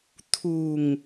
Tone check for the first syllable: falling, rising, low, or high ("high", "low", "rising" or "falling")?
low